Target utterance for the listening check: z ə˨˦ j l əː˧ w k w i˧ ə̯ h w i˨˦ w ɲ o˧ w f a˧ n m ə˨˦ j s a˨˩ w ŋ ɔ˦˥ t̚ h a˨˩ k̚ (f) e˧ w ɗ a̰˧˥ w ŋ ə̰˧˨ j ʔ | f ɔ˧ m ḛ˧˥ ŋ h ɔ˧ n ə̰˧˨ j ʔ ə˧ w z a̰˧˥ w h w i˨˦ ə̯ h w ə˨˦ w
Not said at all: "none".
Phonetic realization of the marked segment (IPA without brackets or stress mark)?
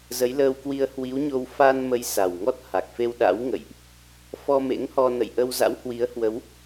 f